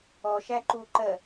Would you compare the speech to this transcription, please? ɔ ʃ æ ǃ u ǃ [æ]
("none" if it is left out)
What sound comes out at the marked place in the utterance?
ɜ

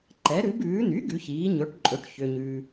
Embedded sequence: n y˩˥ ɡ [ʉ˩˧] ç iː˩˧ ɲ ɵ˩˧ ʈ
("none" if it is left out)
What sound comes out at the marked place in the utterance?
ʉ˩˧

